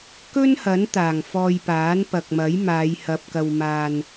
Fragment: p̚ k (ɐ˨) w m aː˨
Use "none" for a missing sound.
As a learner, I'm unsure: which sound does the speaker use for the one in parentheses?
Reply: ɐ˨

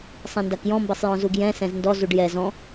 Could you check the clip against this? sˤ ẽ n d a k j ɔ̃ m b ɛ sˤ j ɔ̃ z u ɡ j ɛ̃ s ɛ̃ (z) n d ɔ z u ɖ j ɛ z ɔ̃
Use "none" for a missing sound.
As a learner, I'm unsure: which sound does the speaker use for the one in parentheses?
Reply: z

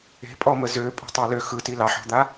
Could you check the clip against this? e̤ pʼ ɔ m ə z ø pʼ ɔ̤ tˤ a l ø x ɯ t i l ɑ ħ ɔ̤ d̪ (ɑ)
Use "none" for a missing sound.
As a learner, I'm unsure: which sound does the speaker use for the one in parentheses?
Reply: a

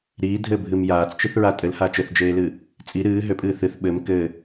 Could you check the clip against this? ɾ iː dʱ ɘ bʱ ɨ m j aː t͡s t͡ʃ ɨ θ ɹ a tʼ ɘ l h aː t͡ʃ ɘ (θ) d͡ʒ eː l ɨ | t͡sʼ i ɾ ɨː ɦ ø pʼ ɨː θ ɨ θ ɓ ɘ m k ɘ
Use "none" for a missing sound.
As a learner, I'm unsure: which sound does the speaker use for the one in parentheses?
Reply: θ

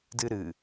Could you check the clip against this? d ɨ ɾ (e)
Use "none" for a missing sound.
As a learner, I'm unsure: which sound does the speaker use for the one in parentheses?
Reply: ɨ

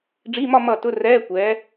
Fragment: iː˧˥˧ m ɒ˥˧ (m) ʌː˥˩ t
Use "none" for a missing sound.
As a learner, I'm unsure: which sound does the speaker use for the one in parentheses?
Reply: m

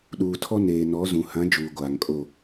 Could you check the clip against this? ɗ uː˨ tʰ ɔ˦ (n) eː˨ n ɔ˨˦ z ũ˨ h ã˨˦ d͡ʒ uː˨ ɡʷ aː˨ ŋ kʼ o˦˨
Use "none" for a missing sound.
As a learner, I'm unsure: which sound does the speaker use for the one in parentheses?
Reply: n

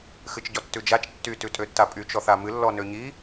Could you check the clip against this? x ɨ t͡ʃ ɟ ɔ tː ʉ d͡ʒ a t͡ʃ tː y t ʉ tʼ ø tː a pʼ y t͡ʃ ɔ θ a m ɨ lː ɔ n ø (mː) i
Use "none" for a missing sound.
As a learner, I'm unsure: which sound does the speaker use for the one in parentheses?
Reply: ɲ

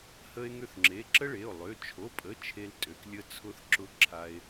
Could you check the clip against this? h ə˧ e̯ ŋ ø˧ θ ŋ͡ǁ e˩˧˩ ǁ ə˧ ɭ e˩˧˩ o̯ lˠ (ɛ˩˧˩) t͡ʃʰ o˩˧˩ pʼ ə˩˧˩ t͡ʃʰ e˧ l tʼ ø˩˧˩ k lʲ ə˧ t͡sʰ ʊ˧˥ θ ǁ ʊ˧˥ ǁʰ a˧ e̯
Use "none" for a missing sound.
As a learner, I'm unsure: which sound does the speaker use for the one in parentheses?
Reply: ø˩˧˩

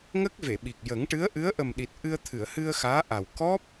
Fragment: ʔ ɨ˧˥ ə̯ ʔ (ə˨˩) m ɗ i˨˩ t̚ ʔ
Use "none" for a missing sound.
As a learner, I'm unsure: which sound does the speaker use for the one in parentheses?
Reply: ə˨˩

